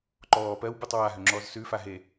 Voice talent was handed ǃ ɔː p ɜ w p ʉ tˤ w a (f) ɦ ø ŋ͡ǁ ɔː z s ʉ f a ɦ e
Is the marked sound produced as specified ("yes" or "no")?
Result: no